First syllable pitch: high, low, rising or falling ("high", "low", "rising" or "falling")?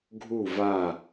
falling